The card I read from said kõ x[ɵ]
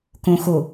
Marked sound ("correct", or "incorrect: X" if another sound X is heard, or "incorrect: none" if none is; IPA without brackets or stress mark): incorrect: o